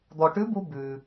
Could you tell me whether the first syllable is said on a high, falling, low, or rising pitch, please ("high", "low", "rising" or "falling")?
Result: low